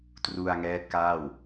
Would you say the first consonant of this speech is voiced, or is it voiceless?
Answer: voiceless